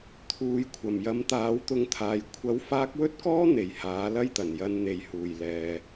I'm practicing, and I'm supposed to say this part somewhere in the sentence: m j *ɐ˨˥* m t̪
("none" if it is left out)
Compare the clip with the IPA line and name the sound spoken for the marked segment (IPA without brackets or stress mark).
ɐ˨˥